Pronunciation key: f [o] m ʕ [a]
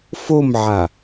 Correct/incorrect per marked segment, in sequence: correct, correct

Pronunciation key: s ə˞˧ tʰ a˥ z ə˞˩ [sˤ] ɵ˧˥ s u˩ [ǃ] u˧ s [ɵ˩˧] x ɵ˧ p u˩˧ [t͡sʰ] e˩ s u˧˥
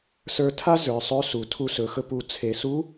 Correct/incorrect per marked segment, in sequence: correct, incorrect: tʰ, correct, correct

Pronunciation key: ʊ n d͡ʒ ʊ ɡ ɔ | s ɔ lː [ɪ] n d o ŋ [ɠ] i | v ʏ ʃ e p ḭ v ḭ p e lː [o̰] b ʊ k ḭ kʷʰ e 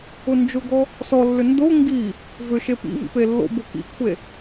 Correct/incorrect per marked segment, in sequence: incorrect: ʏ, incorrect: ɡ, correct

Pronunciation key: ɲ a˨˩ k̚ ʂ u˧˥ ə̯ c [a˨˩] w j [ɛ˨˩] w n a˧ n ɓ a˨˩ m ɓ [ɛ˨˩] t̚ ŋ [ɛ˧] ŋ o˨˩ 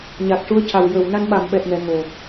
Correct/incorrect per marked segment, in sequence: correct, incorrect: ə˨˩, correct, incorrect: ɛ˨˩˨

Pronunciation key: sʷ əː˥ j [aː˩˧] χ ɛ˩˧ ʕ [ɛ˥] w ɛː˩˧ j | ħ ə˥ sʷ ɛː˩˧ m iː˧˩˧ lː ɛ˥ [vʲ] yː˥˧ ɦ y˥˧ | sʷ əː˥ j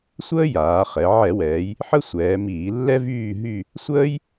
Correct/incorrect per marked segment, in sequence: correct, incorrect: ɛ˧˩˧, incorrect: v

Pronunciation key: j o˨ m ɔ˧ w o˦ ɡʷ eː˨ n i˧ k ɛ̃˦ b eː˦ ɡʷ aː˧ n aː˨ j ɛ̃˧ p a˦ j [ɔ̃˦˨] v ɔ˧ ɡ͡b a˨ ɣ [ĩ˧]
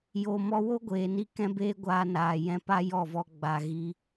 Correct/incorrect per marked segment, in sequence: incorrect: ɔ˦˨, incorrect: i˧

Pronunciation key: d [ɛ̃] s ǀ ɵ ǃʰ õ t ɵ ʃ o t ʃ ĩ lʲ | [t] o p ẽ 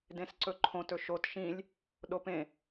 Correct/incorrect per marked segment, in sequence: incorrect: ẽ, incorrect: ɗ

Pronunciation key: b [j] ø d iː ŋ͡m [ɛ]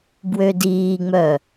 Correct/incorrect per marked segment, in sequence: incorrect: w, incorrect: œ

